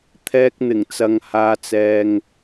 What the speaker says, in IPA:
t̪ʰ ɛː˧ k̚ n̪ ɪ˨˩ ŋ t͡s ɐ˨ ŋ h aː˧ t͡s ɛː˧ ŋ

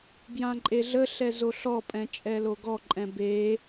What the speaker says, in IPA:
b j ã ǃʼ e ɮ ə ɬ ɛ z o ɬ ɔ pʼ ɛ̃ t͡ʃʼ ɛ l o ɡ ɔ ǃʼ ɛ̃ b e

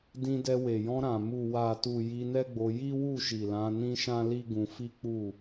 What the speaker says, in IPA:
d ĩ˧ d ɛ˧ w e˨ j ɔ̃˧ ɾ ã˨ m u˨ w a˨ t u˨ j i˧ n ɛ˦ ɡ͡b o˧ j i˦ w u˦˨ ʃ i˨ l ã˨˦ n ĩ˦ ʃ ã˦ l i˦ ɡ ũ˧ f i˦ k͡p u˦˨

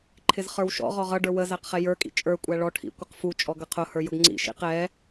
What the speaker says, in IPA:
ǃʰ ɪ z χ ə˞ w ʃ ɔ̰ ʁ ɔ ʁ ʌ ɖ ə˞ w ə z æ q χ ɛ j ə˞ kʼ ḭ t͡ʃʼ ə˞ kʷʼ æ ɭ ɔ ʈʰ ḭ kʷ ə q f u t͡ʃʼ ɔ ɡ ʌ qʰ ʊ h ə˞ j ʊ ɡ ŋ͡ǀ ḭ ʃ ḭ q ɛ

